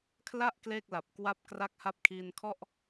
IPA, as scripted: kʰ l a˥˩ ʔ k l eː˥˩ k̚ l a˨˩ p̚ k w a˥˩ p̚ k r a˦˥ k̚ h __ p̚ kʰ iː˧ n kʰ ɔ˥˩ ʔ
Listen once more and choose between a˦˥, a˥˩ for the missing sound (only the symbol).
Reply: a˦˥